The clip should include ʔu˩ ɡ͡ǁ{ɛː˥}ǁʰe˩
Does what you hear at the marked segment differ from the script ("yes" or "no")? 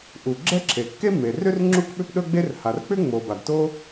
yes